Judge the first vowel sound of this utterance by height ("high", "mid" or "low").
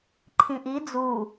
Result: high